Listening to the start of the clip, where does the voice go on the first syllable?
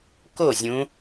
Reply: falling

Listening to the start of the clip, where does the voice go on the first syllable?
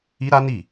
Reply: high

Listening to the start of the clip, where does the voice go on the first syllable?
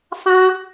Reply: high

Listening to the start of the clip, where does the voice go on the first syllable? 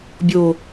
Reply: low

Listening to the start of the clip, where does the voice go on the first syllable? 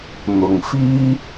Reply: low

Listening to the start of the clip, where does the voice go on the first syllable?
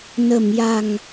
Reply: low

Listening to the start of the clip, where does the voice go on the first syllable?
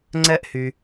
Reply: high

